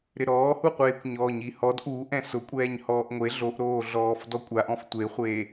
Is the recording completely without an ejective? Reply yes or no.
no